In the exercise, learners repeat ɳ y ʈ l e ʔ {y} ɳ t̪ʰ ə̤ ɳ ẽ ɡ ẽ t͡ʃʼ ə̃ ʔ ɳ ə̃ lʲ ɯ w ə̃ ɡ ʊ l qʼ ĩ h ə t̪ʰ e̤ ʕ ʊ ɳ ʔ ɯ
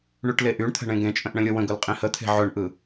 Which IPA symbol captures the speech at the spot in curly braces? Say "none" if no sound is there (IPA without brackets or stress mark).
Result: y